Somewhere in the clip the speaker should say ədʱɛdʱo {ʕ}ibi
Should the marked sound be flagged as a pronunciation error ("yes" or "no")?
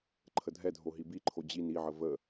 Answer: yes